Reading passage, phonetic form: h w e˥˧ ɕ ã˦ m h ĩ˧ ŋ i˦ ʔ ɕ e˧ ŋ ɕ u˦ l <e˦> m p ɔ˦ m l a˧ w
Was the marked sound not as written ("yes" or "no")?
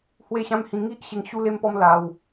no